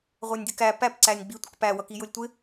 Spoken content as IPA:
ʁʷ ɛ nʲ dʲ ə k æ p æ p ǀ æ nʲ ɡ͡b i tʷ ə k p æ w ʌ k i j ʊ lʲ tʷ ɪ

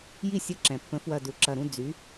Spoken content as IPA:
j i˥˧ sʲ ə˧˥˧ ǁ ɛ̃˩ pː ə̃˩˥ f w ɐ˧˩ d u˩˥ ǁ ɐ˧˩ ɾ ũ˥˧ d͡z y˩˥

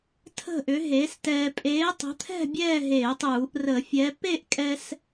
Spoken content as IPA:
tʰ ə̤˥˨ ʔ ʏ˨˥ ɦ eː˨˥ s t ɛː˧ pʼ eː˨˥ tˤ ə̤˨˥ t̪ʰ ɛ̤˥˨ bʲ ɛː˥˨ ɦ eː˧˩˧ tˤ uː˧˩˧ ʔ r ə˧˩˧ fʲ ɛ˨˥ p e˥˨ ʔ kʼ ɛ˧ s

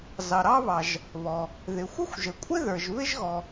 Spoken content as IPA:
z ɑ˩ ɾ ɑ˥ β ɑ˩ ʒ | β ɔ˩ | ð ɪ˩ xʷ ɪ˥ xʷ ʒ ə˩ kʷʼ ɪ˥ ð ə˞˩ ʒ β ɪ˥ ʒ ɣ ɔ˩

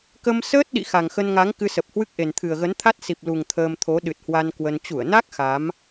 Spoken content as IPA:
k ə˧ m s əː˦˥ t̚ ɗ ḭ˧˨ x a˨˩ ŋ x ə˧ n ŋ a˨˦ ŋ k ɨ˧ s ə˨˩ p̚ h w ɨ˦˥ k̚ ʔ e˨˩ n t̪ʰ ɨ˨˩ ə̯ ɣ ə˨˦ n t̪ʰ a˦˥ t̚ s i˨˩ p̚ l u˨˩ ŋ t̪ʰ əː˧ m t̪ʰ o˨˦ ɗ ɨ˨˩ t̚ h w a˧ n k w ə˧ n t͡ɕ u˧˩ ə̯ n a˦˥ k̚ x a˨˦ m

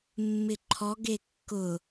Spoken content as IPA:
mː ɪ ǃʰ ɔ ɡ e kː ʊ

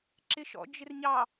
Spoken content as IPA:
ǁ ɪ ʃ ɔ̰ d͡ʒ ɪ r ɲ ɑ

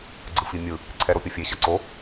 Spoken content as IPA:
ɡ͡ǀ ɯ f i mʲ ɯ | ǀʰ ɛ ɾ o pʲ ʌ fʲ e ɕ ʌ ǀ o

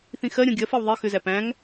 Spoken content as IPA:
θ ĩ x ɜ ɾʲ ɔ̃ ɡʲ ɜ f ɛ w ðˤ i x ʏ z æ p æ̃ ŋ

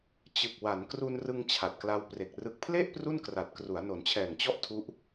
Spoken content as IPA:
t͡ɕ ɯ˨˩ k̚ w a˩˦ n k r u˧ n r ɯ˧ ŋ t͡ɕʰ a˨˩ t̚ k l a˧ w p r e˨˩ k̚ r ɯ˨˩ k̚ pʰ l e˥˩ ʔ p r u˥˩ n k r a˨˩ t̚ k r u˩˦ a̯ n o˩˦ n t͡ɕʰ ɛː˨˩ ŋ t͡ɕ ɔ˥˩ ʔ tʰ u˦˥ ʔ

